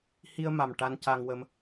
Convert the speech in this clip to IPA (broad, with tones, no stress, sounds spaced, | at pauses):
h i˧ ə̯ m a˨˩ m ʈ a˧ n c a˧ ŋ w ə˧ m